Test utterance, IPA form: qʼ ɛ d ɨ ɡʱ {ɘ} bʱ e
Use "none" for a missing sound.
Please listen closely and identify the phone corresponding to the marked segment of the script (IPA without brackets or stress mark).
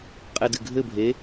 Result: ɘ